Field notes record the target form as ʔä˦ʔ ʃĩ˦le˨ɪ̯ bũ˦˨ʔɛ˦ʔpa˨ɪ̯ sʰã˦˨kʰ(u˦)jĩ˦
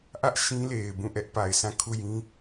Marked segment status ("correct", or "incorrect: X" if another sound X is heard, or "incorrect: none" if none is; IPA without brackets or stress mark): incorrect: u˦˨